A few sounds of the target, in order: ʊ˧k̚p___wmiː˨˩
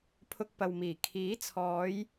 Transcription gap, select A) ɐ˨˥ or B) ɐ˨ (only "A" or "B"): B